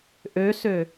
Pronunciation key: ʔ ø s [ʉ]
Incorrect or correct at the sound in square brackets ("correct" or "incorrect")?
incorrect